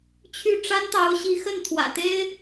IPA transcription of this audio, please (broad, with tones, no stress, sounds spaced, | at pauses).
t͡ɕʰ y˥˩ ʈ͡ʂ a˥ n t̪ ɑ˧˥ ʊ̯ ɕ i˧˥ x ə˥˩ n t̪ʰ w ä̰˨˩ t̪ e˥ ɪ̯